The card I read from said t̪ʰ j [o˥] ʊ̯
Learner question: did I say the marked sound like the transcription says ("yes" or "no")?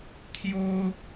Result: yes